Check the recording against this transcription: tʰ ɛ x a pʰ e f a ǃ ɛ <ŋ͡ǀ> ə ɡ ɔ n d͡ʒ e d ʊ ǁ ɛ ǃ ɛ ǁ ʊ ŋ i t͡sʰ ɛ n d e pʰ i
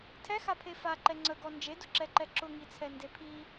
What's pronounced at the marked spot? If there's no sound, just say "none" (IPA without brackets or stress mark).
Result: ŋ͡ǀ